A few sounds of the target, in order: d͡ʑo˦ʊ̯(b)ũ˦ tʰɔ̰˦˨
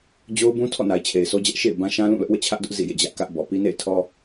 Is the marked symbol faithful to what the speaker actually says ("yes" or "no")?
yes